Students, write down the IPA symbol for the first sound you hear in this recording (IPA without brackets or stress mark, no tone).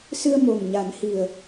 s